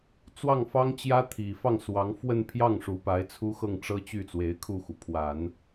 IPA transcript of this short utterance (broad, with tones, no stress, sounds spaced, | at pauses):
t͡s w ɑ˥˩ ŋ f ɑ˥ ŋ t͡ɕ j ä˥ t̪ʰ i˨˩ f ɑ˥˩ ŋ s w ɑ˧˥ ŋ f w ə˥˧ n pʰ j ɑ˥˩ ŋ ʂ u˧˥ p a˧˥ ɪ̯ t͡sʰ u˥ x ɤ˥˩ ŋ ʈ͡ʂ ɤ˥ t͡ɕ y˥˩ t͡s w e˧˥ ɪ̯ kʰ u˥˩ x u˩ pʰ w a˨˩˦ n